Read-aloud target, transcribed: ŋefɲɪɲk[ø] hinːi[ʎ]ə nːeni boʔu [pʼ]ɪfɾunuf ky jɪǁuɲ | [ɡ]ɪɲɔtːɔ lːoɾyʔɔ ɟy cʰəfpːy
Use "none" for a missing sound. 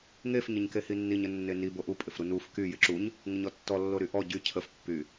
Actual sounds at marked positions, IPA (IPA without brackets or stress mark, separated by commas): e, ɲ, pʼ, ŋ